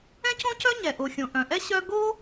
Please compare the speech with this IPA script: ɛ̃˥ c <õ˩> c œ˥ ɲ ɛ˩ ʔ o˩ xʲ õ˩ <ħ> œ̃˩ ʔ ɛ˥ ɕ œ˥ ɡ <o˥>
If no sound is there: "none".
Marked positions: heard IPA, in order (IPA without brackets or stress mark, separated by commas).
õ˥, ʔ, o˥